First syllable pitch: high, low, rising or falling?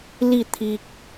falling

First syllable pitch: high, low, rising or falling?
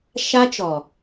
high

